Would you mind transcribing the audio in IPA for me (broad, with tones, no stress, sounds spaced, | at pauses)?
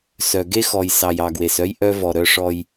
s œ˨ ɡ e˦ x ɔ˨ j s ɑ˨ j ɑ˨ ɡ w e˨ s œ˦ j ʔ œ˦ v ɔ˨ ɾ œ˦ ʂ ɔ˦ j